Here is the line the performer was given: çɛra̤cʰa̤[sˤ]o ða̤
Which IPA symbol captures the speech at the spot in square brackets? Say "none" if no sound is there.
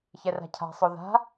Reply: sˤ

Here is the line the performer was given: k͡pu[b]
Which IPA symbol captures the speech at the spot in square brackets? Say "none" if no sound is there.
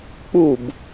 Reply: b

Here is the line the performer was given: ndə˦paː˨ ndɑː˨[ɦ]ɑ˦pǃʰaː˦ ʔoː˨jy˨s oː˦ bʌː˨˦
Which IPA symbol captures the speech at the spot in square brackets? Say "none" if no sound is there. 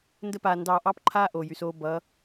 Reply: ʔ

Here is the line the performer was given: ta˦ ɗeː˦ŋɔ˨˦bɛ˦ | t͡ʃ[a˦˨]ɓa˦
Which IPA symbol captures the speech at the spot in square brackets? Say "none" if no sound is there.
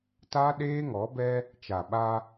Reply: a˨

